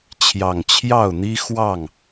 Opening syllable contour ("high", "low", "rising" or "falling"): low